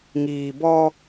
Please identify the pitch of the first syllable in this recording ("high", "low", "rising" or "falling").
low